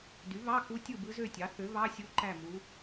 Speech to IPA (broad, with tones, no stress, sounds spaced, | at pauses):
d y˩˥ β ɑ˧˥˧ k u˧˥ tʲ ɯ˥˨ b ɯ˧˥ z ø˥˨ tʲ ɑ˩˥ θ ø˩˥ β ɑ˧˥˧ sʲ u˧˥ ǃ æ˥˨ m u˧˥